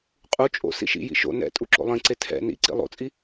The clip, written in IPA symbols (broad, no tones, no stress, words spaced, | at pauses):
qʼu t͡ʃʼo̰ sḭʃḭjḭ ʃo̰ nɛ̰ tʼuǁo̰lˠĩǀe tʰɛ̰ nḭǀḭ lˠo̰t͡sʼi